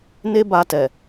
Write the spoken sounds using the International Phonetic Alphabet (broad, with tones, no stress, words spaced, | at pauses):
ne˦ba˧tɛ˨